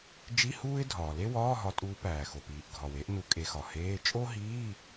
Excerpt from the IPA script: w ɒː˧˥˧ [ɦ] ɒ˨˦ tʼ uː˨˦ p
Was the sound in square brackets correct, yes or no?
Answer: yes